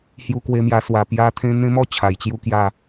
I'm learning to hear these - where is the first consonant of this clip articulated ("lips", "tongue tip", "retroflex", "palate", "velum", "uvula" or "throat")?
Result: throat